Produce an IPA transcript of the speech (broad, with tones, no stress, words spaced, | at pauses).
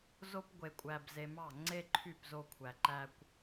zo˥p ɡʷe˧kʷʼæ˧bze˧mɑ˥˩ ŋ͡ǀe˥ǃʰy˥˩pzo˧ kʷʰæ˩ǃæ˧kʷ